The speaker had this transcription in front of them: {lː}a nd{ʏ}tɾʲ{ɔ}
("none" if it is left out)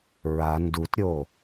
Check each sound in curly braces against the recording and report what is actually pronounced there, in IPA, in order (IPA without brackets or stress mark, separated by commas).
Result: ɹ, u, o